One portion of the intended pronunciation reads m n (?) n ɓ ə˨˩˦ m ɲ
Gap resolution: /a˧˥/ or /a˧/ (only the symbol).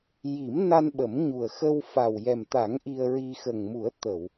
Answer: a˧